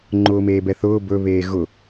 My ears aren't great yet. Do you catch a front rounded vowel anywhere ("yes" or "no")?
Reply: no